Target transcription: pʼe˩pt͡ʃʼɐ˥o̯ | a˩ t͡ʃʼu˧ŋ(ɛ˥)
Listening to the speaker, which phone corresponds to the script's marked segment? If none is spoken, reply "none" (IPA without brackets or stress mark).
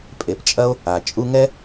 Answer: ɛ˥